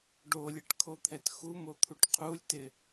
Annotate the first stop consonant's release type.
plain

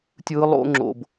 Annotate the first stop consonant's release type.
plain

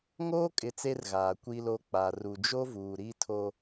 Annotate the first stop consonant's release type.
ejective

